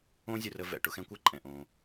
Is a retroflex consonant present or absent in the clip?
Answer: present